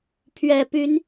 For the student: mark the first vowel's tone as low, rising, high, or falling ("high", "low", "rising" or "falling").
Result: low